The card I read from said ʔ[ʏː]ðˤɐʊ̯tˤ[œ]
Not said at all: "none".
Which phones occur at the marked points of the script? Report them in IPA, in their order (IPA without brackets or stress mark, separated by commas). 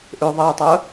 ʏː, œ